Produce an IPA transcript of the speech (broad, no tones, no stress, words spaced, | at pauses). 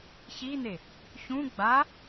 çin̪e | çũ ɡ͡ba